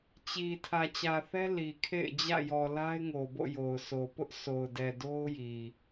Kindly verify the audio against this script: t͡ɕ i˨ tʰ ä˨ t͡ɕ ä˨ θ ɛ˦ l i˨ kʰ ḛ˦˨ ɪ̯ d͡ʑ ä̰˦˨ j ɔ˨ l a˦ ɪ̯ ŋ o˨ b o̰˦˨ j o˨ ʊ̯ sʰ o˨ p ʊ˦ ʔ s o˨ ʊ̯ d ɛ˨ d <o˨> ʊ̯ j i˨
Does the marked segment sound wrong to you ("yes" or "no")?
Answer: yes